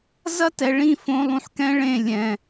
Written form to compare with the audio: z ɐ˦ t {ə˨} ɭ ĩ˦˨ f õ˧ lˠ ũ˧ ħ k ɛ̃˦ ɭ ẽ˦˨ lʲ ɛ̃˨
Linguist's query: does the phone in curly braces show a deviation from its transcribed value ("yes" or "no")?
yes